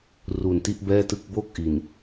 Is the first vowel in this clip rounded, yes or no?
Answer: yes